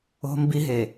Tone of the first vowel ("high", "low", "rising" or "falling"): high